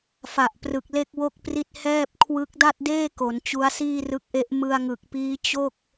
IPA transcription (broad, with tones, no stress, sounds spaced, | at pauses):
f a˨˩ ʔ p r ɯ˨˩ k̚ l e˥˩ k̚ w o˥˩ k̚ p r i˥˩ t̚ h ɛː˥˩ p̚ kʰ w ɯ˦˥ k̚ d a˥˩ t̚ d eː˥˩ k o˩˦ n t͡ɕ u˦˥ a̯ s iː˥˩ r ɯ˦˥ k̚ ʔ e˦˥ ʔ m ɯ˧ a̯ ŋ ɯ˨˩ k̚ p iː˦˥ t͡ɕ o˥˩ k̚